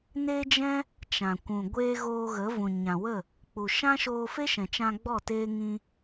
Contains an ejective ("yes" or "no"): no